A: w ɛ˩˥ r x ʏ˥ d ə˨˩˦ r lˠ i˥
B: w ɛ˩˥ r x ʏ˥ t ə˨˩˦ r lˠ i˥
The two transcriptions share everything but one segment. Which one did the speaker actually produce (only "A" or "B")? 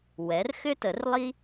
B